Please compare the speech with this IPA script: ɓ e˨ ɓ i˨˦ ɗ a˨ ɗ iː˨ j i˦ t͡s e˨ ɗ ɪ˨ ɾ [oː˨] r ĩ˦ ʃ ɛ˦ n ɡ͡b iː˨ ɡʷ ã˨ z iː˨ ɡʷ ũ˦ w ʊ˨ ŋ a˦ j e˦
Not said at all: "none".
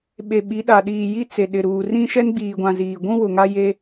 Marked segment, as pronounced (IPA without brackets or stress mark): uː˨